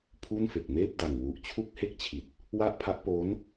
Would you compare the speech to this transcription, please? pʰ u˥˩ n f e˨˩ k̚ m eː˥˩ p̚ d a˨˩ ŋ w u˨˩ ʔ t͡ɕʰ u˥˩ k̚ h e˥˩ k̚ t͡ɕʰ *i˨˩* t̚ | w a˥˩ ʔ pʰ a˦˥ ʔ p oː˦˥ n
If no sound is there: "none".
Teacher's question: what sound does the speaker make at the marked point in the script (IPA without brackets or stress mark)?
i˨˩